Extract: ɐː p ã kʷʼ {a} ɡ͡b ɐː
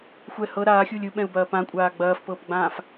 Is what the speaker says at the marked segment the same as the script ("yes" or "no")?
no